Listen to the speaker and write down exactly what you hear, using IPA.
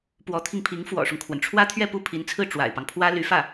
p w ɔ˧˥ t̪ʰ i˧ ŋ pʰ i˧˥ ŋ f w ɔ̰˨˩ ʂ ʊ˦ ŋ kʰ w ə˩ n ʈ͡ʂʰ w ä˥ t̪ʰ ɥ ɛ˥˧ p u˥˩ pʰ i˧˥ n t͡sʰ ɹ̩˥˩ ʈ͡ʂ w a̰˨˩ ɪ̯ p ɑ˦ ŋ pʰ w ä˥ l y˧˥ f ä˥˩

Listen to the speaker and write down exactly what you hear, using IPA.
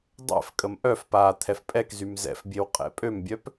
dˤ ɛ̰ f kʼ ə m ʔ œ f p aː t̪ʰ ɛ f pʼ ɛ k z y m z ɛ̰ f bʲ e w qʼ ɛ̰ pʼ ø m bʲ œ p

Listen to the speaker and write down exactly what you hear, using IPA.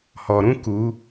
h ɔ˨ ɾ ũ˦ k u˨˦

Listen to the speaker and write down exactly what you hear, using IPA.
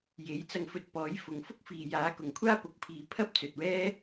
j e˨˥ j t͡s ɐ˧ ŋ f ɵ˧ t̚ p ɔː˨˥ j f ʊ˨ ŋ f ʊ˥ k̚ f iː˨ j aː˨˥ k ʊ˨˩ ŋ kʷʰ aː˥ p ʊ˨ k̚ pʰ iː˨˧ pʰ ɐ˥ p̚ t͡s ɵ˨ t̚ w ɛː˥

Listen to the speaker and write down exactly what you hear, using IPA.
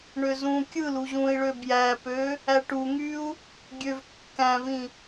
ɳ ø z ũ kʲ ɯ l u ʑ ũ i̯ ɭ ø b j æ p ø | æ ʈ u ŋ y u̯ | ɡʲ ø v kː æ̃ v ĩ

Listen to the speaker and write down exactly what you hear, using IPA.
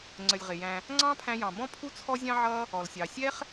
ŋ͡ǀ ə˨ lʲ ʁ ɪ˨ j æ̃˧ | ŋ͡ǀ ɑ̃˦ pʰ æ̃˧ j ɑ̃˨ b ɔ̃˦ pʰ u˦ t͡sʰ ɔ˦ zʲ ɑ̃˦ ʕ ʌ˦ | ɔ˨ l sʲ ɑ˨ sʲ ɛ˦ χ

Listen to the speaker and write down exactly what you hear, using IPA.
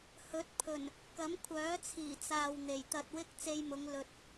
h ɵ˨˥ t̚ pʰ ɵ˨˩ n | k ɐ˨˥ m kʷʰ œː˨˥ t͡sʰ iː˨˩ t͡s aː˨ w n̪ e˨˩ j t̪ ɐ˧ t̚ w ɪ˥ k̚ t͡s e˧ j m ʊ˨˧ ŋ l ɵ˨ t̚

